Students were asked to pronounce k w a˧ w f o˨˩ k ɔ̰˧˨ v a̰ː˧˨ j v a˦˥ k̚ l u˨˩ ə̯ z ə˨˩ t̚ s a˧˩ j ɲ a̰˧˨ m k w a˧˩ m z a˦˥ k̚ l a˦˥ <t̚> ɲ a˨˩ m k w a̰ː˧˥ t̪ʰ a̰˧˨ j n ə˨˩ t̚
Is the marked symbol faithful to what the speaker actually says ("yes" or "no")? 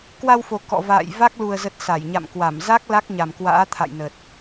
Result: no